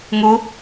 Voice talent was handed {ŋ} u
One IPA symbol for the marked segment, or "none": ŋ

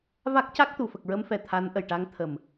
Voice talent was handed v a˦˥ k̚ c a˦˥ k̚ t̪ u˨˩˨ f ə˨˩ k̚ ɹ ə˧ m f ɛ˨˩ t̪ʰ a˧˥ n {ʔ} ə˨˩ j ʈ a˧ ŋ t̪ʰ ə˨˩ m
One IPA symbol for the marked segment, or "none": ʔ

